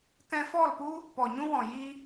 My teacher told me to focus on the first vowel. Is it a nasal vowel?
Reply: yes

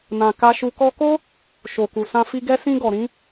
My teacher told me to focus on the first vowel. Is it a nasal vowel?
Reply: yes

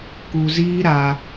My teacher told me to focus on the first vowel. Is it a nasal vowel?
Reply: no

